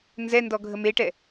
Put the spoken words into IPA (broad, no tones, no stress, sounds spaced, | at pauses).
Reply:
n z ɛ n d ɔ ɡʱ ə m e ʈ ɛ